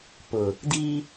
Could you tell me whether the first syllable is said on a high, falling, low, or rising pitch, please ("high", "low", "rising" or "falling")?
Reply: low